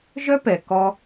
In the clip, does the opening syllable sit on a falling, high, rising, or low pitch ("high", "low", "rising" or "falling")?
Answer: high